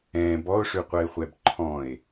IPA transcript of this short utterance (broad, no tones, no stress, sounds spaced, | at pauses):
ɛ̃ b ɔ o̯ ʂ ʉ qʷ ɜ e̯ χʷ ɛ b ǃʰ ɔ̃ e̯